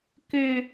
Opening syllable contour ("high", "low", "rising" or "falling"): high